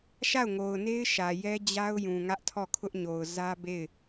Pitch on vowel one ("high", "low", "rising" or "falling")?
falling